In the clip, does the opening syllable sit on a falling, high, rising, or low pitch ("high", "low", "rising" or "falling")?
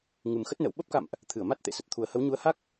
low